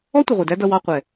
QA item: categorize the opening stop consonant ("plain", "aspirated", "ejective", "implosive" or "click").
plain